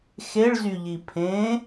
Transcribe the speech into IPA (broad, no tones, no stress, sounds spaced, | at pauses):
x e ɭ z y ʎ i pʰ ẽ